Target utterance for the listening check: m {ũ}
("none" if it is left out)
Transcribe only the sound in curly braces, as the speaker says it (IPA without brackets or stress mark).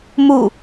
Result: u